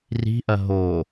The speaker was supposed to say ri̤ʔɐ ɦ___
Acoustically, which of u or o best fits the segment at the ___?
o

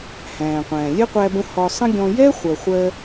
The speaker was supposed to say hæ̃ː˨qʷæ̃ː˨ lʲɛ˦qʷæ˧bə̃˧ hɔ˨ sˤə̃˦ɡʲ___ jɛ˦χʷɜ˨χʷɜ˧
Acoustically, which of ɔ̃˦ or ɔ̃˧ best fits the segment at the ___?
ɔ̃˧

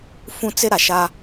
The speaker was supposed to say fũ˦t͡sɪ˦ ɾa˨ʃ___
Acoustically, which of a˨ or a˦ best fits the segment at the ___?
a˦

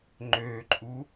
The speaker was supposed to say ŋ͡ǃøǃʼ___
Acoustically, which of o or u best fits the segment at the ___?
u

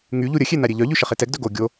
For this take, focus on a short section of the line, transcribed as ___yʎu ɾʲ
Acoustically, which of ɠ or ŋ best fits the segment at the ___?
ŋ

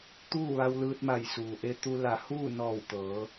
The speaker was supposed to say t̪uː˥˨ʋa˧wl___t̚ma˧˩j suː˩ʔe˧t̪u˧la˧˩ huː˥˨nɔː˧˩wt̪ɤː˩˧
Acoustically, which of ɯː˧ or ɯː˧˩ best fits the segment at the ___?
ɯː˧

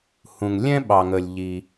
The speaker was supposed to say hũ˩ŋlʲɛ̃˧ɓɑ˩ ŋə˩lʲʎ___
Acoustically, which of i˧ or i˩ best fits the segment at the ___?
i˩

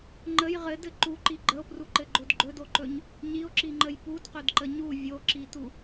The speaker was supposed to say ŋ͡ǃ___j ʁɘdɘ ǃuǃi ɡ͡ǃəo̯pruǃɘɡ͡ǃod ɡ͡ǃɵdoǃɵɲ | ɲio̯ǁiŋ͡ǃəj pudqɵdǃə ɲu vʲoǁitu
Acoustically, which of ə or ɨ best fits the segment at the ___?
ə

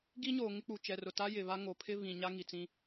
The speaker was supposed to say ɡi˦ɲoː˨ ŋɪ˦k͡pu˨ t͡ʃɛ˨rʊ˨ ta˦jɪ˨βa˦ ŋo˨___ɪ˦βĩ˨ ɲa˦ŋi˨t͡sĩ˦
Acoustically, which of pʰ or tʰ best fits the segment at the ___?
pʰ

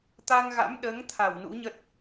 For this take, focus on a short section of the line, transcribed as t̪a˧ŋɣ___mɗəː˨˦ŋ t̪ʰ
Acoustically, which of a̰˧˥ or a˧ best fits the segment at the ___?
a̰˧˥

